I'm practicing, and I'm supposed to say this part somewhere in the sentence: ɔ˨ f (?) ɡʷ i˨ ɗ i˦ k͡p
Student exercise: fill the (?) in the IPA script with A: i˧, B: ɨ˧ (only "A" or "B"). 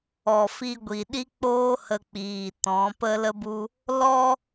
A